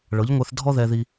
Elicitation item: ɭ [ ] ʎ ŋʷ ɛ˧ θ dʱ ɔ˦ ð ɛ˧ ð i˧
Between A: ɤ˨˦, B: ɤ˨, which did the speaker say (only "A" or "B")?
A